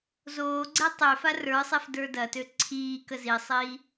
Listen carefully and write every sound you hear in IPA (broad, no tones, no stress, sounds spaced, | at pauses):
z oː ɡ͡ǀ ɛ tˤ ø f a r ə˞ sˤ ɛ f d ə˞ d ɐ t ø ǀʰ iː k ə z i sˤ iː